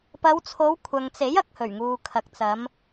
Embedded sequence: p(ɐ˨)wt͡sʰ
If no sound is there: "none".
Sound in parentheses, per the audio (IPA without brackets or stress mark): ɐ˨˧